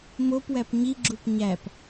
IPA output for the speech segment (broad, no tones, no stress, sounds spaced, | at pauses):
m o p w æ p ɲ i ɡ͡ǁ u p ɲ æ p